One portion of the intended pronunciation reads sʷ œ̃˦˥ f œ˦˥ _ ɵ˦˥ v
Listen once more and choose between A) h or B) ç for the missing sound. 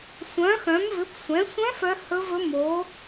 A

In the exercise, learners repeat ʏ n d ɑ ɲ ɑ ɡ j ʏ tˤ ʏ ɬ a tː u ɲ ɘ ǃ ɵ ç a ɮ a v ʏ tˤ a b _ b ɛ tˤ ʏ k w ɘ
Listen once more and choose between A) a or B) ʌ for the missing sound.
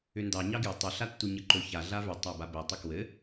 A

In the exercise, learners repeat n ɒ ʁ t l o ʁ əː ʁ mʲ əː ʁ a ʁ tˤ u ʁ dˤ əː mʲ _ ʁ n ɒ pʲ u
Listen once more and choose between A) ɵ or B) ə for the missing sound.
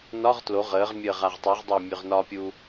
A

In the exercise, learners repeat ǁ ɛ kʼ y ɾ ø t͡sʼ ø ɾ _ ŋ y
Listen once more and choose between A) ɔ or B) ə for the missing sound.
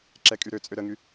B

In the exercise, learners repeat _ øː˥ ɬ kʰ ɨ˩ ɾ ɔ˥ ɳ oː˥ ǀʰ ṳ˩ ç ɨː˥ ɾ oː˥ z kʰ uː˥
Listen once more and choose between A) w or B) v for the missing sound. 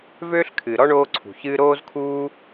B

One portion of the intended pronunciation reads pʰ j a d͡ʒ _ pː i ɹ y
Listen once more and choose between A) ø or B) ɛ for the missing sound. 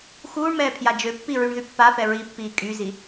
A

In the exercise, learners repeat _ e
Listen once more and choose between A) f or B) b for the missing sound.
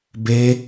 B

